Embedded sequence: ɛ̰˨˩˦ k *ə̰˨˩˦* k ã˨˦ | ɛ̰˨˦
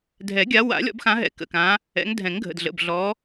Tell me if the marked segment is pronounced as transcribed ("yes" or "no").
no